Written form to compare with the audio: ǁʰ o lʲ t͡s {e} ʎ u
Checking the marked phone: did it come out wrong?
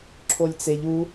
no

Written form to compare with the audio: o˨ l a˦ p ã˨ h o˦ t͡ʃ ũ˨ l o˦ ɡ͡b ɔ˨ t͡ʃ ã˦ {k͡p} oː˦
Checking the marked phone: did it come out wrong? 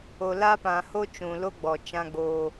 yes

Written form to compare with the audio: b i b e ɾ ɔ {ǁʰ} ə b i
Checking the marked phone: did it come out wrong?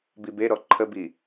yes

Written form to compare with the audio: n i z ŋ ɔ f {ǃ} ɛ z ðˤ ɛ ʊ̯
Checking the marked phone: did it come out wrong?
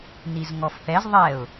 yes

